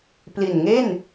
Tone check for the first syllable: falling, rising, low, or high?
low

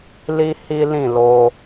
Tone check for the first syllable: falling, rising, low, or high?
high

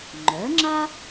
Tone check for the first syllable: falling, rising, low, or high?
rising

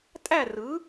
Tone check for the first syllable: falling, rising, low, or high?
falling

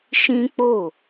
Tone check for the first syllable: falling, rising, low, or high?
high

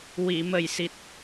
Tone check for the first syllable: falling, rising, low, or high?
low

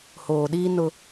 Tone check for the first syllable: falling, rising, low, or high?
low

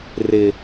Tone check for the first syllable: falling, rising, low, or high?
low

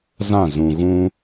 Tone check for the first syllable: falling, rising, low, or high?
falling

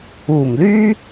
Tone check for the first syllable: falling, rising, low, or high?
low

